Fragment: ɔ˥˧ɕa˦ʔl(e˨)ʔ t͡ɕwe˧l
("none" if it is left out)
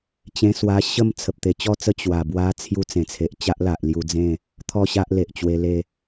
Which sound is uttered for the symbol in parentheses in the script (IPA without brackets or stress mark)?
e˨